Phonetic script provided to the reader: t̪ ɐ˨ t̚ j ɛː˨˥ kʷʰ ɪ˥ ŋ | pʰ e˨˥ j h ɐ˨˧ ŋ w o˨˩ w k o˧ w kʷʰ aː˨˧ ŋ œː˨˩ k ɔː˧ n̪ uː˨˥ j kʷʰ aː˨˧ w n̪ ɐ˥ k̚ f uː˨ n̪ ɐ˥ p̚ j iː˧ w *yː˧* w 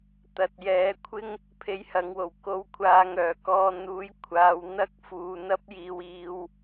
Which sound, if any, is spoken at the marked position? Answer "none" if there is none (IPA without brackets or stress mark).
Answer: iː˧